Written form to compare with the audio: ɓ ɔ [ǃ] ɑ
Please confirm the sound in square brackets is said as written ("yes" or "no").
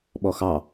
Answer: no